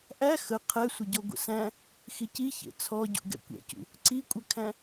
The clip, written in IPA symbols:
ʔæ xə qʰɛsʷəɟɔ ɡʷə̰sæ̃ | xici çḛt͡sʰɔ ɟṵɡɛ̰kʷɛ̰cṵ | ǀikʷʼəkʰæ̃

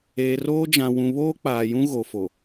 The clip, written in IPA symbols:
eː˨roː˦ d͡ʒã˨wũ˨βoː˦k͡paː˨ jũ˦ɣo˨ fo˨

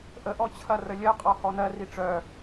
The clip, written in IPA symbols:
ʔəʔɔ t͡ɕʰɐrəlʲɜqʼɔ hɔnɜri ʈ͡ʂœ

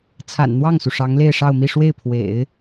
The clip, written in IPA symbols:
t͡sʰa̰˨˩nn̪wɑ˥˩ŋsu˩ ʂɑ˧˥ŋle˥˧ɪ̯ʂɑ˥˧ʊ̯mi˥˧ ʂwe˥˩ɪ̯pʰwḛ˨˩˦ɪ̯

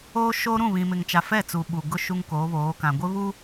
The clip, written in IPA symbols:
oː˦ʃoː˦ ɾũ˦˨βĩ˨mɪ˨ŋt͡ʃa˨ fɛ˦˨t͡su˨ ɓu˨ɡʊ˦ ʃu˦ŋkoː˨˦βoː˨˦kã˨ ɡʷɪ˦βu˦

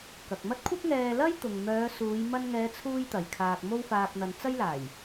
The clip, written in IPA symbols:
kɐ˨k̚mɐ˥t̚ kʷʰɐ˥p̚ŋɛː˧ lɐ˥j t̪ʊ˨ŋ mœː˨˧suː˨˧j mɐ˧nŋɛː˨˧t͡sʰuː˧j t̪ɐ˨jkʰaː˧k̚ mo˧wfaː˨k̚ n̪ɐ˨nt͡sɐ˥jlaː˨˩j

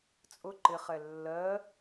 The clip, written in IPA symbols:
t͡sʼʊ ǃɪχɛ lːɜ

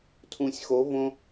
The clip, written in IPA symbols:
tʰũ˨sʲxo˨˦ võ˧

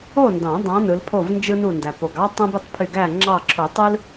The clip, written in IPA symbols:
o˥˨ndɑ̃˨˩˦dˤɑ̃˨˦ nɯ˨˦lpʰo˥˨vnd͡ʒɯ˥ nu˧˩ndæ˩po˩ɡ ɑ˥ tˤõ˥bi˥˨tˤ pʰy˧˩ɡæ˥˨ŋ͡ǁɑ˥˨ ǁʰo˨˩˦tˤɯ˥l

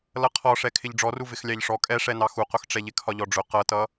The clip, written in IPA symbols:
lʌqʰɔʂɛ kʰɪʎɖ͡ʐɔru vɪxlʲɑʎʂɔ kʼɛʂɛnɑ xuqʊxʈ͡ʂɛʎɪ kʰɒʎɔɖ͡ʐʊ qʌtʌ

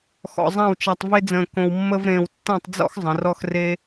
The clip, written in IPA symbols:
xɔ̰˧zˤã˥˧wt͡ʃa˧tˤ ve˥d͡zə̃ː˧ kõ˧wmːə˥vɾẽː˧w tːã˥˧tˤd͡zɔ̰˥x zˤə̃˩˧rɔ˥xre˥

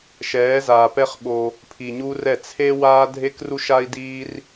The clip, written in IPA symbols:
ʃɛː˨˦zaː˨pɛ˦χɓo˧ | pʰi˨ɲu˦rɛ˦˨ t͡sʰe˦waː˦ dʱe˦kru˦ʃa˦i̯diː˦r

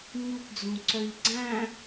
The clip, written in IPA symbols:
ɲupd͡zũǀœʎ ɡ͡ǀæ̃

